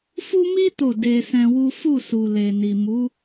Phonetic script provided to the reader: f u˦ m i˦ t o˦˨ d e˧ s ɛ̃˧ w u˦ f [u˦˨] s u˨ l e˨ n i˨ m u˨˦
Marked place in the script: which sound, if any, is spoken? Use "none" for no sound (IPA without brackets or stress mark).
u˦˨